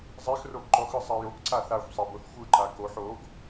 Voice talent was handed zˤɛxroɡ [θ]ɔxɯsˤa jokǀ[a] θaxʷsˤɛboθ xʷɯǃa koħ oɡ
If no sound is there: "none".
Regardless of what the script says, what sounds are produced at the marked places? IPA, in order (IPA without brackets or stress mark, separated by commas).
ǃ, a